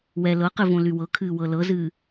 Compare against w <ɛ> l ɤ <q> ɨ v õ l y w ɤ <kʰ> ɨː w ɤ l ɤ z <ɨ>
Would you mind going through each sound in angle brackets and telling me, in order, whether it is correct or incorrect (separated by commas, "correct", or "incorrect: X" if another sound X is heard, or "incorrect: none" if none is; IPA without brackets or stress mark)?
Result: correct, correct, correct, incorrect: ɨː